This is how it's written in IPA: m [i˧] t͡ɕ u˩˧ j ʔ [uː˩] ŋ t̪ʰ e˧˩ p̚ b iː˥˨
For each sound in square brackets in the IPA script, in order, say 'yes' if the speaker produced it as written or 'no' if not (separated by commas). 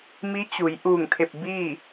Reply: no, no